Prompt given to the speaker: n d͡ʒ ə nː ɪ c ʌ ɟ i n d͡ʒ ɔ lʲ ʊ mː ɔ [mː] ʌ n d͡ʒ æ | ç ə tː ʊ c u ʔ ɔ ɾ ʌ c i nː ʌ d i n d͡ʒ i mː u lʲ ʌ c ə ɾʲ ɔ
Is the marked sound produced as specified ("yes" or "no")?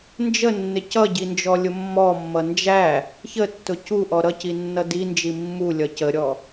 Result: yes